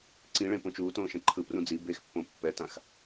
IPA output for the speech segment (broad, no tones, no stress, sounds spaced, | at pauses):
ǀ ĩ ɭ ẽ p õ t͡ʃ uː t õː ʃ ɛ̃ ǃʰ ɯ p r ũ d͡z i b e x pː õ pː ɛ t ã x